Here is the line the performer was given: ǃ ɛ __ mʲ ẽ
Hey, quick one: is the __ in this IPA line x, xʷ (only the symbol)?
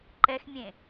x